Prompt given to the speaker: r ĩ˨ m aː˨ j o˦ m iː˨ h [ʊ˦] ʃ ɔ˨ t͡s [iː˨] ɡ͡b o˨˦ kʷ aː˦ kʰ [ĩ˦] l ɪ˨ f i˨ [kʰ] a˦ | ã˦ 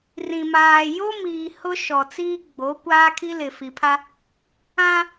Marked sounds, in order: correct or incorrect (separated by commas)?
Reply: correct, incorrect, incorrect, incorrect